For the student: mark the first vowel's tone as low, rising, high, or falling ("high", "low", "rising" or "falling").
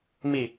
low